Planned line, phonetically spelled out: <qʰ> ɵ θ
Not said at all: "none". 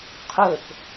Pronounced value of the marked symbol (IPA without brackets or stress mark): qʰ